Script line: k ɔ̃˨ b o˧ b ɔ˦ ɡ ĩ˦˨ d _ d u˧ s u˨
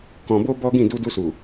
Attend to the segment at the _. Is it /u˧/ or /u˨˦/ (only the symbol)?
u˧